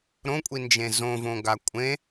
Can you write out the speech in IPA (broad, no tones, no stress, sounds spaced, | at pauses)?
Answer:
ɾ õ kʷʼ i n d͡ʒ ẽ z õ v õ ɡ a kʷʼ ẽ